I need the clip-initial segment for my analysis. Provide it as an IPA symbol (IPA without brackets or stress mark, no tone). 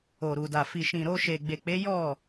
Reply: o